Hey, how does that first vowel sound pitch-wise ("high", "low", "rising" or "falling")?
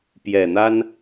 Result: low